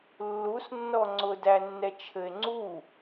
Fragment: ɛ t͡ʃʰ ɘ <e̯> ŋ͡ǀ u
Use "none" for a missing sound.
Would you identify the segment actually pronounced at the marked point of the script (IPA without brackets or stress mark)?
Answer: e̯